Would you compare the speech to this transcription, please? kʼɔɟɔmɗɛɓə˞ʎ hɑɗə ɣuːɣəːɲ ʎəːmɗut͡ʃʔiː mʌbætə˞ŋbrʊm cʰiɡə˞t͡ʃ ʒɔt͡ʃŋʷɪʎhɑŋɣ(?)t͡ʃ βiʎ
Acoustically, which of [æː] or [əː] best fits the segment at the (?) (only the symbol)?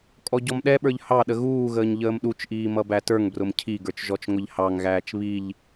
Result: æː